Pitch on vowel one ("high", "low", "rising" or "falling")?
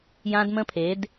high